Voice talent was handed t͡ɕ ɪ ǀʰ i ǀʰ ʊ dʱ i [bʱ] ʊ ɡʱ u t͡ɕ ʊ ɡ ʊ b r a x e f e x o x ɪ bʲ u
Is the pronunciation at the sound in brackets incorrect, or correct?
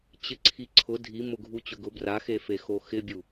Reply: incorrect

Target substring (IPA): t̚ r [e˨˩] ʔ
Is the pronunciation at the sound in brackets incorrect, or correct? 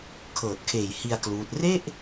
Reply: incorrect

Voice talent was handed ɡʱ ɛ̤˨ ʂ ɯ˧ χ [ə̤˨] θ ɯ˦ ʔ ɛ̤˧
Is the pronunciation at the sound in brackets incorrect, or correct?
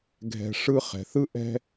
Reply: incorrect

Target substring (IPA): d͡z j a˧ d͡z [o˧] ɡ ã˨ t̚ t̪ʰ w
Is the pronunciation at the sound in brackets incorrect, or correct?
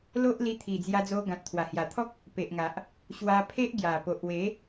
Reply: correct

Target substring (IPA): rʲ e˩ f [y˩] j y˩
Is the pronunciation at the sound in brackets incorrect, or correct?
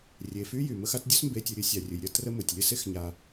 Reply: incorrect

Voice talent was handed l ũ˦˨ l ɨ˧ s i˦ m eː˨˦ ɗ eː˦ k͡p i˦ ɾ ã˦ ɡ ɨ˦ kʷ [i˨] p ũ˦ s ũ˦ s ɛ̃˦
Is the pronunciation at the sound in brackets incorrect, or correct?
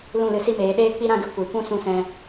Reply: correct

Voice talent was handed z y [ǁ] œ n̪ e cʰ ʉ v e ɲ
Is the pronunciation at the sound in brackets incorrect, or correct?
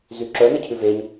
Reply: correct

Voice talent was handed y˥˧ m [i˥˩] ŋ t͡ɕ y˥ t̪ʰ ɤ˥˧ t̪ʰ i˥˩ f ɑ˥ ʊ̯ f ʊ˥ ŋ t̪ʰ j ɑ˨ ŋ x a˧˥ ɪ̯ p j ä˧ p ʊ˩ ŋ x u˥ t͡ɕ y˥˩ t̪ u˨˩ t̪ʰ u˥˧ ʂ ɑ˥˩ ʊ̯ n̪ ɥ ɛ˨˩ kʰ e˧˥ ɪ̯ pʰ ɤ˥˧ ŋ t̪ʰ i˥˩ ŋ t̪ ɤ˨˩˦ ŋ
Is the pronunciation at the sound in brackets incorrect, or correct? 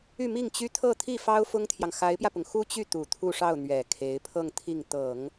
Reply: correct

